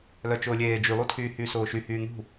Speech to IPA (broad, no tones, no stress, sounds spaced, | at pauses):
l œ t͡ʃ ʊː lʲ eː d͡ʒ y lˠ u tʰ yː h yː s ʊː ʃ y h yː n̪ ṳ